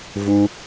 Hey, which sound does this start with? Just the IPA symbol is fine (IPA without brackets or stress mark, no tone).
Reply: v